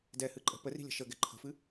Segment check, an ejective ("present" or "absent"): present